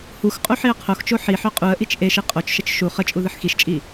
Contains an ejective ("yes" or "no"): yes